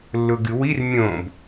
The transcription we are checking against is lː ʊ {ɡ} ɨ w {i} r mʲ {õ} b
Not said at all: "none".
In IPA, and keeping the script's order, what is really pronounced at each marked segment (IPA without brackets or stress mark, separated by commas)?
ɡ, i, õ